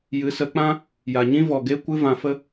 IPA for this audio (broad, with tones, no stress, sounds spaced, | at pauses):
j ɨ˨˦ s ə˨˦ k͡p ã˦ | j a˨ ɲ ĩ˦ v ɔ˨ ɡ e˦ kʷ ɨ˦ v ã˧ f ə˦